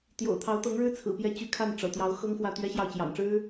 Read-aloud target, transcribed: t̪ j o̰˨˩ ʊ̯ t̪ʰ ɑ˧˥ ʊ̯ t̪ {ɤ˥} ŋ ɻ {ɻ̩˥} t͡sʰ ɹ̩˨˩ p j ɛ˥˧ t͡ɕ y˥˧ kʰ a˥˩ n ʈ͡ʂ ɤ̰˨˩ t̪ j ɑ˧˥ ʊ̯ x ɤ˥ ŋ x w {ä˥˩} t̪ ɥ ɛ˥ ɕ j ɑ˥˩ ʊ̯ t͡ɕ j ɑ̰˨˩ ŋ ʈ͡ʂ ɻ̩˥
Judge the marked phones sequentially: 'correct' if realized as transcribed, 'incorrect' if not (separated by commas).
incorrect, correct, correct